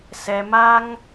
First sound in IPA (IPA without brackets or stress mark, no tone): s